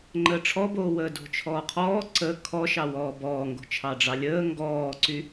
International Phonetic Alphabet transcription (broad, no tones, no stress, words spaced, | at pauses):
ŋ͡ǃəːʈ͡ʂʰɔboː wəːdo̤t͡ʃʰɔːqʰɔː ǀə kʰɔʃɑ wɔːbɔːŋɡo̤ t͡ʃʰɑɖ͡ʐɑlʲəː ŋɡɔːǀy